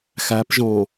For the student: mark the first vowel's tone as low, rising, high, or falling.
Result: rising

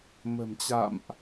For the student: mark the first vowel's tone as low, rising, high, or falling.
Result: low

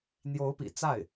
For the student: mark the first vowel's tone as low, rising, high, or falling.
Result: rising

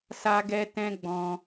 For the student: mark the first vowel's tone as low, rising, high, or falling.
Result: high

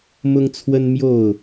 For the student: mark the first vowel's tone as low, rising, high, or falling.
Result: high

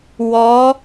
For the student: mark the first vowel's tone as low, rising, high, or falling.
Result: rising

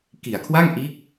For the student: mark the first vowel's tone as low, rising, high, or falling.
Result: low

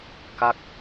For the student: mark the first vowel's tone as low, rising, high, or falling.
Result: falling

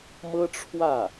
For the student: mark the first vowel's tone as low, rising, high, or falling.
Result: high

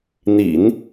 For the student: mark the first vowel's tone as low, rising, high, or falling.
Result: low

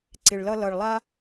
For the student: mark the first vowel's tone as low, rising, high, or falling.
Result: low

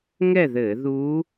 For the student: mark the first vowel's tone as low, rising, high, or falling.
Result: falling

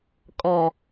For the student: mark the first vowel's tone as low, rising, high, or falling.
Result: low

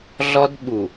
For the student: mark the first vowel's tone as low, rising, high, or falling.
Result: high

